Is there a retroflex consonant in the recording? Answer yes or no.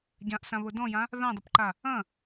no